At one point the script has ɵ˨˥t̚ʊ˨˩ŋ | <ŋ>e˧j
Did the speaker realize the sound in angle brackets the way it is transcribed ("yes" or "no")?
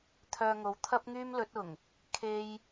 no